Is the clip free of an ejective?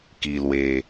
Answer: yes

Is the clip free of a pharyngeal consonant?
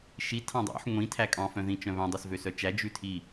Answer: no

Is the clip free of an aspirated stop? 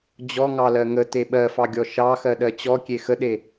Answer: yes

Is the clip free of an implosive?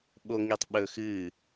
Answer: no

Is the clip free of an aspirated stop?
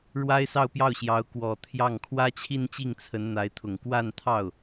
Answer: no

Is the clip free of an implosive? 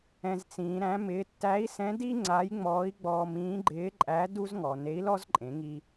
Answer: yes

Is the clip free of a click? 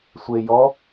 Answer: yes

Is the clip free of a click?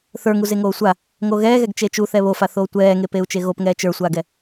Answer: yes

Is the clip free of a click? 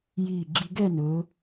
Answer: no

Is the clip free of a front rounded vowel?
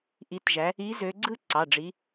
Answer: no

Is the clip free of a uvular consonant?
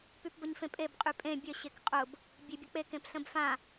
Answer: no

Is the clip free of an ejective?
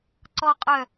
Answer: no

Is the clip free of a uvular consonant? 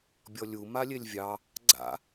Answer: yes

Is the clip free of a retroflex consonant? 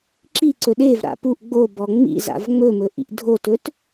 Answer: yes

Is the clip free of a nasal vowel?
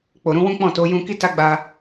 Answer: no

